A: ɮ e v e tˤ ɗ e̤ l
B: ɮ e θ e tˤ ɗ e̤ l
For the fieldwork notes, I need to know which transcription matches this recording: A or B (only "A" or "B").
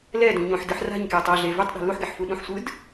A